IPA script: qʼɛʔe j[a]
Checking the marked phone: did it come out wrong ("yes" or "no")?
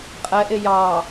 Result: yes